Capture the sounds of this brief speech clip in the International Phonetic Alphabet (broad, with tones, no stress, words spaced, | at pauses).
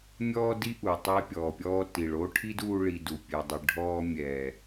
mʲɔː˦di˦ʔu˨ tˤe˧pʲɔː˨pʲɔː˧ti˨ɭ oː˦ʈʰi˦duː˧ ɭi˨ du˨pʲɛ˨dˤi˨ ɖʱɔː˧mʲɛː˨